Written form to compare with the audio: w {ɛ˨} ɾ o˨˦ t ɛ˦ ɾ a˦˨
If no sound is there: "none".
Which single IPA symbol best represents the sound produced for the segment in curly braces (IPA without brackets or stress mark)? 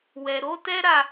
ɛ˨